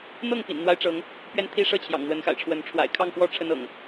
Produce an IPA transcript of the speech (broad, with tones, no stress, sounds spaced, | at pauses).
n̪ ɤ˥˨ ŋ p ḭ˨˩ n n̪ w a˦ ɪ̯ ʈ͡ʂ ɤ˨˦ ŋ | p ɥ ɛ˦ n t̪ʰ i˦ ʂ ɤ˥˨ t͡ɕʰ j ɑ̰˨˩ ŋ n̪ w ə˨˦ n x a̰˨˩ ɪ̯ ʈ͡ʂʰ w ə˨˦ n ʈ͡ʂʰ w a̰˨˩ ɪ̯ kʰ ɑ˥˨ ŋ p w ɔ˥˨ ʈ͡ʂʰ ə˦ n ɤ̰˨˩ ŋ